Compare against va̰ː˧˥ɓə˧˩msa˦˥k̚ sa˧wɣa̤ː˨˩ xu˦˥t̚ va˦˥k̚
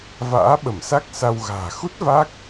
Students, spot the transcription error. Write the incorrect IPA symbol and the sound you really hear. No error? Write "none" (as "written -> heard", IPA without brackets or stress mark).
none